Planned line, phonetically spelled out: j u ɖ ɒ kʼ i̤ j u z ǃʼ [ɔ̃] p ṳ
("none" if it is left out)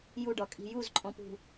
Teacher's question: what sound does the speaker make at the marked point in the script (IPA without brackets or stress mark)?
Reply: ɔ̃